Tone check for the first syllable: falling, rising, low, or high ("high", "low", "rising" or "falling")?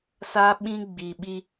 high